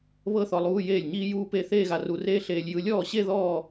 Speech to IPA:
β ɤ˥˧ θ ɔ˧ lˠ uː˧˥˧ j eː˥˩ lʲ ɲ iː˥ j uː˥ p e˥˧ θ eː˥˧ ɣ a˧ r u˧ r eː˥ ɬ eː˧ lʲ j ɯ˧ lʲ ɔː˥˩ ɕ e˥˧ ð ɔː˥˧

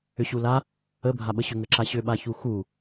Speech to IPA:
ʏ ɕ u l a | ə bʱ a ɓ ə ɕ ʏ ŋ ə ǁ a ɕ ʏ ɓ a ç u x u

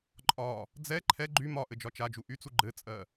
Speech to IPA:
ǃʼ ɒ | d͡z ɛ ǃʰ ɛ ɡ͡ǃ y m ɒ ʔ ɘ d͡ʒ ɒ t͡ʃ a d͡ʒ u ʔ y t͡s u ɡ͡ǃ ɘ t͡sʼ ɜ

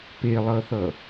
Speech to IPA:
p e lˠ ʌ θ ʌ

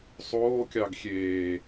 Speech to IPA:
sˤ oː kʲ ɑ ɡ xʲ eː

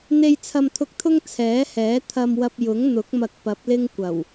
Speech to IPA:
n̪ e˧ j t͡sʰ ɐ˧ m t̪ʰ ʊ˧ k̚ t̪ʰ ʊ˥ ŋ t͡sʰ ɛː˨˥ h ɛː˨˥ t̪ʰ ɐ˧ m w ɐ˧ p̚ j ʊ˨˥ ŋ n̪ ʊ˨˥ k̚ m ɐ˧ k̚ p ɐ˨˥ p̚ l ɪ˥ ŋ kʷ ɐ˨˩ w

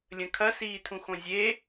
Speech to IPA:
lʲ ə̃ kʰ ɐ s iː tʰ ũ x õ zʲ e

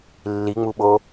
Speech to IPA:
lː i ŋ͡m u ɓ o

